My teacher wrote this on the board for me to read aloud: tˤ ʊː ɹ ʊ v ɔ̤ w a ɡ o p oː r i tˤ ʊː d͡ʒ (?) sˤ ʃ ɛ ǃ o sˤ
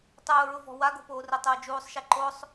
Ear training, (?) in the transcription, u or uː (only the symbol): uː